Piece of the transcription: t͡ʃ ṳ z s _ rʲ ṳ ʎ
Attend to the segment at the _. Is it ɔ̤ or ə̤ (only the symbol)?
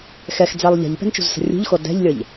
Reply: ə̤